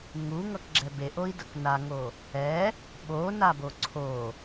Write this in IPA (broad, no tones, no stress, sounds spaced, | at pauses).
ŋ u ŋ ʌ k ɡ͡ǁ ɛ b e ʔ o i̯ d ʌ k n a ŋ o | ɛ | ɓ o n a b o ǀʰ o